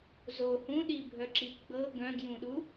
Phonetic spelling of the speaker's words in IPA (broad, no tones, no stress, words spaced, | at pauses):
zo hũɗibʱœǁi ɡ͡bɤ ɡœ̃ɡjũɗu